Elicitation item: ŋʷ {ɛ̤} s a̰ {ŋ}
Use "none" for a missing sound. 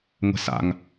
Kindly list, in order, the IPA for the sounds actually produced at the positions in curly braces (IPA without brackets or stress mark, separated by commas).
ɛ̤, ŋ